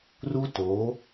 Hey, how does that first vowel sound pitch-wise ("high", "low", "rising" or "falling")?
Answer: high